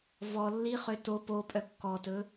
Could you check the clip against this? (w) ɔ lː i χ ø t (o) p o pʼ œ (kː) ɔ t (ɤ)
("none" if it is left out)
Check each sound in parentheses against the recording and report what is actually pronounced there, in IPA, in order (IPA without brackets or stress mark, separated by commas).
v, o, kː, ɵ